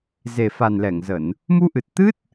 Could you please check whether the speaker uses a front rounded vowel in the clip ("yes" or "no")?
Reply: no